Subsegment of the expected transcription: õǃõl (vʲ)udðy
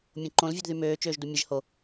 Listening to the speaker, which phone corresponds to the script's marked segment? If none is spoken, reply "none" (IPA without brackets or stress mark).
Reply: vʲ